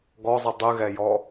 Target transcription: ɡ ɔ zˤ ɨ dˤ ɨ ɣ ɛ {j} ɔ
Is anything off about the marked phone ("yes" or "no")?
no